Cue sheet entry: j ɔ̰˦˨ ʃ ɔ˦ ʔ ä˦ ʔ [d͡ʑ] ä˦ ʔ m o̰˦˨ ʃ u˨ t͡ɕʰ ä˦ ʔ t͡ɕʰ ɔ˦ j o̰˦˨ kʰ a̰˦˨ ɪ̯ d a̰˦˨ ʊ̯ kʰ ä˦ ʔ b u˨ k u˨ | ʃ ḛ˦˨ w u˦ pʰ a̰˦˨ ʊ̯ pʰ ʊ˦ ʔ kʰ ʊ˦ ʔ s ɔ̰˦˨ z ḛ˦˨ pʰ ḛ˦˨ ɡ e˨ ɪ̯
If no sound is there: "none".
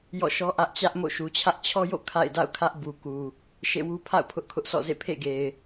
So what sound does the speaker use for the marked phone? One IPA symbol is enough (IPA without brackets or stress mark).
t͡ɕ